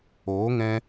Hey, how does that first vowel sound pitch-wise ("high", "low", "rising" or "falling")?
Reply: rising